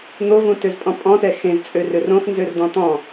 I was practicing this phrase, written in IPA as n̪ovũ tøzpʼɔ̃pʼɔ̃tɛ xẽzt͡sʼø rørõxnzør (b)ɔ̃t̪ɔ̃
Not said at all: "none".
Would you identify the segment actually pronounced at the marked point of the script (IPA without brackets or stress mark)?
d̪